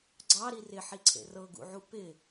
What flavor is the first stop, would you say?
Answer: click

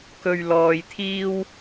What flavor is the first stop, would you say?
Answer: plain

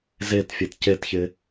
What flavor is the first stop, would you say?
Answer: plain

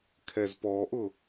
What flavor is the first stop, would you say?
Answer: aspirated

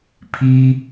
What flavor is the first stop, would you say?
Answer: aspirated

